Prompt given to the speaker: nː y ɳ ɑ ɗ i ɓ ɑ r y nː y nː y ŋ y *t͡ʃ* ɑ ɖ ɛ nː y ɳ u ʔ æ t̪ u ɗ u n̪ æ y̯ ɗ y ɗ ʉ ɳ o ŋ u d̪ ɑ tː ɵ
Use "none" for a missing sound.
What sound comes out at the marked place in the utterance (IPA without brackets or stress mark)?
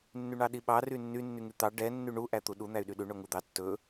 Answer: t̪